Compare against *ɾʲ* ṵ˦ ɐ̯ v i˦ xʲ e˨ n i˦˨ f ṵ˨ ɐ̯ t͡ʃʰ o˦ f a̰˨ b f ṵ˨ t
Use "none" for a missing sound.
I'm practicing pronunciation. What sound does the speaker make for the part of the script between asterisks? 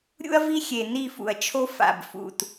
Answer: ɾʲ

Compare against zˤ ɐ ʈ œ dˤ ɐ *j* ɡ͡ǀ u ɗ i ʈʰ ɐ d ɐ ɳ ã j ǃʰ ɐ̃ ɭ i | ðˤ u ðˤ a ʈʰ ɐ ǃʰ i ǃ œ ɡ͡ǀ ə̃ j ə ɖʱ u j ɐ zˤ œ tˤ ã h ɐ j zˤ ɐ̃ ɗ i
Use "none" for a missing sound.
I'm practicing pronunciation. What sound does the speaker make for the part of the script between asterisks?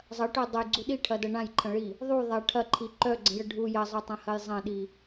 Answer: j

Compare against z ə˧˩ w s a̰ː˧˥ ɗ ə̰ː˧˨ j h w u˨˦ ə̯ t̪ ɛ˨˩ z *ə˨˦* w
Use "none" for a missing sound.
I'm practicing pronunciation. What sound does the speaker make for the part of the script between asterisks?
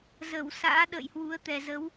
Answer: ə˨˦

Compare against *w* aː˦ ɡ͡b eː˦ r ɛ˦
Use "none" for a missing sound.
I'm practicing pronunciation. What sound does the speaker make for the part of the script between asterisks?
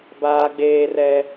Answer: b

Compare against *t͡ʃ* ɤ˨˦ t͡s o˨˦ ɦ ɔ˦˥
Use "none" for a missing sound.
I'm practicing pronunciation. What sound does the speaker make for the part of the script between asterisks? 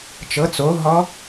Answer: t͡ʃ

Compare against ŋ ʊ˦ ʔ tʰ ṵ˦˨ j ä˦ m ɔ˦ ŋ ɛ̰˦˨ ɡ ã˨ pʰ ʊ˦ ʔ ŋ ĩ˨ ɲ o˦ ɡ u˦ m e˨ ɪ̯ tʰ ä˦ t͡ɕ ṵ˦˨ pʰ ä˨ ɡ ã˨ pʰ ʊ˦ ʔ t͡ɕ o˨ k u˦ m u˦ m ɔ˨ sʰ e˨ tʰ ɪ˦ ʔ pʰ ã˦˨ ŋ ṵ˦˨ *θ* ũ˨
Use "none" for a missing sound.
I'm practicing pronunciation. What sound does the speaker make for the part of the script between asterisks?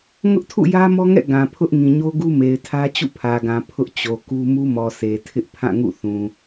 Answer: θ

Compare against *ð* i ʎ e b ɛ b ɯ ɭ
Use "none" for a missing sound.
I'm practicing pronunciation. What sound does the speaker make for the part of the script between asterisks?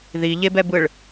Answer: ð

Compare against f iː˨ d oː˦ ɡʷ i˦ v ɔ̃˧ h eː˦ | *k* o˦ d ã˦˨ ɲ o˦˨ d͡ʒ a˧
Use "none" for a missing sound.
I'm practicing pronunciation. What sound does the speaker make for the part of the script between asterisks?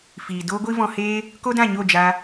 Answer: k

